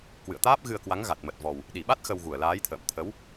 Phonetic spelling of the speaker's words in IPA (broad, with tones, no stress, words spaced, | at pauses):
kwɨ̰˧˨ə̯t̪aː˦˥p̚ɣɨ˧ə̯kwa˨˦ŋ ɣa˨˩t̚mə˨˩t̚ vɔ˨˩w | ɗi˧˩ɓa˦˥t̚ xə˧wɣu˧˩ə̯laː˨˦jt̪ʰə̰ː˧˨m t̪ʰə˨˦w